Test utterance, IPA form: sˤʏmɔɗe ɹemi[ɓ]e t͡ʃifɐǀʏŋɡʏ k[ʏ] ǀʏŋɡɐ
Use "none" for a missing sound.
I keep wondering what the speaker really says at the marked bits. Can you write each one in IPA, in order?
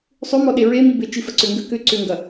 b, ʏ

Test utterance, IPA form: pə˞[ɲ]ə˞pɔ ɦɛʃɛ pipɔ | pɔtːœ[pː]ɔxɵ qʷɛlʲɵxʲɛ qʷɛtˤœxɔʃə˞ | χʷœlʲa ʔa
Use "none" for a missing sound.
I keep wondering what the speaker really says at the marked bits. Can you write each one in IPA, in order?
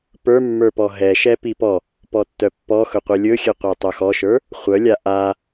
mː, pː

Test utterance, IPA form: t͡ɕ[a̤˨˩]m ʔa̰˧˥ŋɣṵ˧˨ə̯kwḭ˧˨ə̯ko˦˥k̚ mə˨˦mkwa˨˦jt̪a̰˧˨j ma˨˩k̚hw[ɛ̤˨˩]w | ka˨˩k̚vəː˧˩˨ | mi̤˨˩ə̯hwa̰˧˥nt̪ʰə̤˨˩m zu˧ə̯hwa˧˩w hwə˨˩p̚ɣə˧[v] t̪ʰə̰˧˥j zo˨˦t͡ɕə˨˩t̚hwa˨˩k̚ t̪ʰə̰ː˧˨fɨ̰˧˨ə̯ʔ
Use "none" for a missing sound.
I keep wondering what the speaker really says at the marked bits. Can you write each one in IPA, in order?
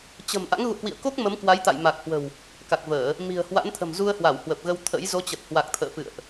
ə̤˨˩, ə̤˨˩, w

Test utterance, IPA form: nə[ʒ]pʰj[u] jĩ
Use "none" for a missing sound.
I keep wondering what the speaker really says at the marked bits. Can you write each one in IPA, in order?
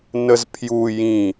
z, u

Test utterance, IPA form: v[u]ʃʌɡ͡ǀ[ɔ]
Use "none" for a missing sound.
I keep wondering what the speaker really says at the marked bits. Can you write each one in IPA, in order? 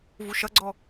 u, ɔ

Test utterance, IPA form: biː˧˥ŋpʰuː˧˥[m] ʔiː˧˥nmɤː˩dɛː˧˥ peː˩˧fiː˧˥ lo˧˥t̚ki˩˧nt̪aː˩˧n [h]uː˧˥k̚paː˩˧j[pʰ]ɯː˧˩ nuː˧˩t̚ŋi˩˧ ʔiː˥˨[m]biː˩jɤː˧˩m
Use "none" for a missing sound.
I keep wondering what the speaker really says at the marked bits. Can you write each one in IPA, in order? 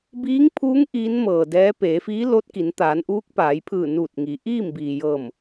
ŋ, ʔ, pʰ, m

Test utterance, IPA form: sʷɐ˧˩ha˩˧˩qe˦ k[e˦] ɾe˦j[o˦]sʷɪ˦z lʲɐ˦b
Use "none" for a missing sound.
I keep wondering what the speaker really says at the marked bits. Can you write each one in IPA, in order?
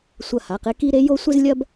i˦, o˦

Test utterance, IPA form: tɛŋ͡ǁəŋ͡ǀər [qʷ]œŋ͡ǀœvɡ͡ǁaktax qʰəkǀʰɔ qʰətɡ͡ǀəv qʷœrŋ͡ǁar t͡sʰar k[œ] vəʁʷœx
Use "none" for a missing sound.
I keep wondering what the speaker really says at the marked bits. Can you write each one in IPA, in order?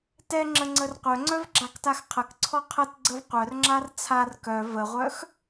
qʷ, œ

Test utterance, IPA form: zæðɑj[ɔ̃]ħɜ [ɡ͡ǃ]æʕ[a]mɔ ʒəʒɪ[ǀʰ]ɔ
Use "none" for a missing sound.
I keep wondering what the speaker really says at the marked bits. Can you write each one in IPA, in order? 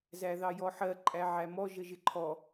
ɔ, ǃʼ, æ, ǃʰ

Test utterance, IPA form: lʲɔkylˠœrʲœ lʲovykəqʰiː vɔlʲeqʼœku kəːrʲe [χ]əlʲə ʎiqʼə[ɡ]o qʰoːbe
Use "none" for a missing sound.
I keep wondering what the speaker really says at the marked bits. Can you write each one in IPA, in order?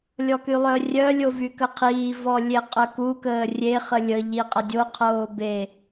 χ, dʲ

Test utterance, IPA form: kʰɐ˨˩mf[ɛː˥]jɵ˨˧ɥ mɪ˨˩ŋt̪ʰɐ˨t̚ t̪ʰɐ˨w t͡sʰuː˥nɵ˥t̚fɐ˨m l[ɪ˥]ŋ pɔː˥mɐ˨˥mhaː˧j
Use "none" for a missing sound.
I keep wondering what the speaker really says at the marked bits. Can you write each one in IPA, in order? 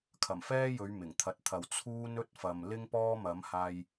ɛː˥, ɪ˥

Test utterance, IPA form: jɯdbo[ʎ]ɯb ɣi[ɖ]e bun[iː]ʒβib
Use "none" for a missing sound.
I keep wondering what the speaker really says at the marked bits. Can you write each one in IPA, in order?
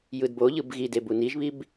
ʎ, d, i

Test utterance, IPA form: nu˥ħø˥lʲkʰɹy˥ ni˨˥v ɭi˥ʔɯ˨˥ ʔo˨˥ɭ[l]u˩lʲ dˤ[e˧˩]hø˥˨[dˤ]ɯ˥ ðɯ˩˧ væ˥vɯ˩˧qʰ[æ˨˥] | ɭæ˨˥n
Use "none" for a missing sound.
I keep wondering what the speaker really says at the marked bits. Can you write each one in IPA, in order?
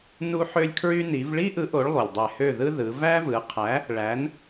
lˠ, e˧˩, ð, æ˨˥

